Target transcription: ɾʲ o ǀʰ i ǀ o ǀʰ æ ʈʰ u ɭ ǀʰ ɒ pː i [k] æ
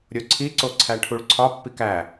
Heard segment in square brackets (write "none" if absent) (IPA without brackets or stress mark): k